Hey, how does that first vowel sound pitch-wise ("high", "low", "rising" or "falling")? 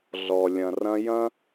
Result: low